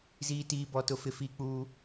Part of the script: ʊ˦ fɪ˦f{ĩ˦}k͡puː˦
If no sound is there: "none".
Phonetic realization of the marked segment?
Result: i˦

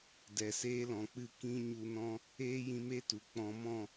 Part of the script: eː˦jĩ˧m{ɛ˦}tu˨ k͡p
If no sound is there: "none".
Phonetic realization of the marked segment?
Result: e˦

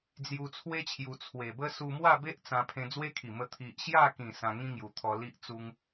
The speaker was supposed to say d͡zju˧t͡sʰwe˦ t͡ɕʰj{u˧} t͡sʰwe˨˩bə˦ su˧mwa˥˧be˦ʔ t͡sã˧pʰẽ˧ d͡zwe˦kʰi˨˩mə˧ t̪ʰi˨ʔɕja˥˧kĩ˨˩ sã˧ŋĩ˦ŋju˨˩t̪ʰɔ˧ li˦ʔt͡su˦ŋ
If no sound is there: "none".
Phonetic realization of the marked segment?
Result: u˧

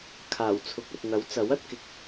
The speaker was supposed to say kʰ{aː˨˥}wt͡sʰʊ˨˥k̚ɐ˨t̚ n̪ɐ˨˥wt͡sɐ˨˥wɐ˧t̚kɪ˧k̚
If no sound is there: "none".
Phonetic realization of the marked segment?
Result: aː˨˩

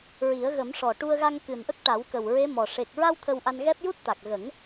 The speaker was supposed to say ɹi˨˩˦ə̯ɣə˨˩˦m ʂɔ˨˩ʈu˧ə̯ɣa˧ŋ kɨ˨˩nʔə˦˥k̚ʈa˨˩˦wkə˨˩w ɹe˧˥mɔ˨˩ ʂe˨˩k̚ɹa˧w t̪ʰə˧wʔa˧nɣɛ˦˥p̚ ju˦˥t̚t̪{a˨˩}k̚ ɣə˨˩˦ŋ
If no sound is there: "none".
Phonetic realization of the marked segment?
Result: a˨˩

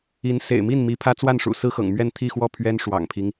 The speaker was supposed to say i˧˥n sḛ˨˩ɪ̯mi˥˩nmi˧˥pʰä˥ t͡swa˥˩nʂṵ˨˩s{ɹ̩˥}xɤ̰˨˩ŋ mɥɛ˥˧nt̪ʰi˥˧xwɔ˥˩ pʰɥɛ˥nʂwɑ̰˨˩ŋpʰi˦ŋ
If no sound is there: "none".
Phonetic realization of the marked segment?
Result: ɹ̩˥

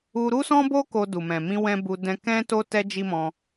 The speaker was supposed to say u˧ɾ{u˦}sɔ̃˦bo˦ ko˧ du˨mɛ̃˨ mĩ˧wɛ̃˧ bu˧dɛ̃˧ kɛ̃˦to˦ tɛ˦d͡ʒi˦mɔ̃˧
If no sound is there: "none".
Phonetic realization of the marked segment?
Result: u˦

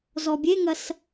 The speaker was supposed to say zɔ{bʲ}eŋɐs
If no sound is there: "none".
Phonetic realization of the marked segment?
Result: bʲ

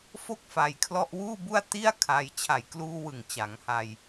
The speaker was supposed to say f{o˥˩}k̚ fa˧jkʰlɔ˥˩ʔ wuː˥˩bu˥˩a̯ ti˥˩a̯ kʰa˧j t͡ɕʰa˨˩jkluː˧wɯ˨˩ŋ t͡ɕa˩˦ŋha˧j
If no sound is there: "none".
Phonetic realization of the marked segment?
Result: o˥˩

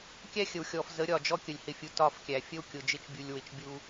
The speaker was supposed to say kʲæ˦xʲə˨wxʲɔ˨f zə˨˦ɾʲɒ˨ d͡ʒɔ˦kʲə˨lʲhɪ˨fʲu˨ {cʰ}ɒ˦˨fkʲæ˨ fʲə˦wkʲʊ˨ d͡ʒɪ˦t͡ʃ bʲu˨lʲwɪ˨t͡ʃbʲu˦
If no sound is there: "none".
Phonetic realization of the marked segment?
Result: t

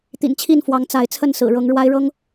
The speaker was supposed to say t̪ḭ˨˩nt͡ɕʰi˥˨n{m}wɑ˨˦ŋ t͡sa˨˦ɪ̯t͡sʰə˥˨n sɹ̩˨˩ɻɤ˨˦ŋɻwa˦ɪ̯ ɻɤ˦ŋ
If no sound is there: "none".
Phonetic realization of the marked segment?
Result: f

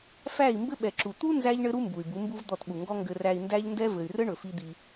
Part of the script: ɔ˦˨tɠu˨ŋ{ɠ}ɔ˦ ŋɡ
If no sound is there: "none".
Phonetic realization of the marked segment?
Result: ɡ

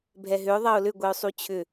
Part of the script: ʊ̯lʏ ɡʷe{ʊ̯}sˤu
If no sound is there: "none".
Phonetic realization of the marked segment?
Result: ʊ̯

